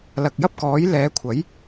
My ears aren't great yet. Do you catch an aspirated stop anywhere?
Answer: yes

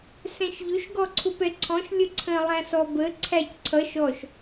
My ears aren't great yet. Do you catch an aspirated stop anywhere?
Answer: yes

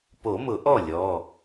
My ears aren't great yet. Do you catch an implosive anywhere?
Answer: no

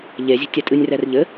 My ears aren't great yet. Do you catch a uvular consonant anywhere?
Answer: no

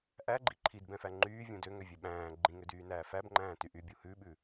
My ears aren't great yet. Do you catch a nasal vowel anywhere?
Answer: yes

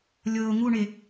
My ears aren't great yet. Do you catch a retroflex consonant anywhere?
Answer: yes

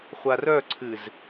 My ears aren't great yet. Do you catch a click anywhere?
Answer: yes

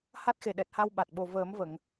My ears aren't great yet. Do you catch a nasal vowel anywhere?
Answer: no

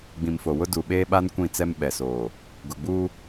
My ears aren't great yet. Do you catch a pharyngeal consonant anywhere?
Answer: no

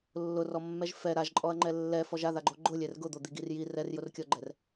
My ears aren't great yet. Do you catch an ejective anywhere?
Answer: yes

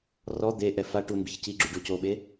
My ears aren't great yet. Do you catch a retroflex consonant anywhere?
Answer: yes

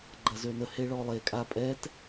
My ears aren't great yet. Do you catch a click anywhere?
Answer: yes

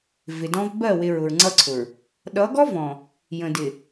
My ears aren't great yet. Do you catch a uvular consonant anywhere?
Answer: no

